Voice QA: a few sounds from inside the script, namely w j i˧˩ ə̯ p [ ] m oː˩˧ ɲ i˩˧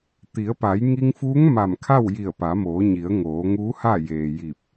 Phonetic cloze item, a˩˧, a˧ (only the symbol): a˩˧